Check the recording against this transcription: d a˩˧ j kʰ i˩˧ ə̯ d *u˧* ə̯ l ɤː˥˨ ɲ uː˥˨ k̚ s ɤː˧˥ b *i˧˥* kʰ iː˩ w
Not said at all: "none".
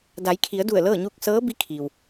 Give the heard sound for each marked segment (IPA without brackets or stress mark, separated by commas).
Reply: u˧˩, i˧˥